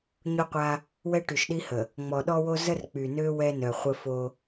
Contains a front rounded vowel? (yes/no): yes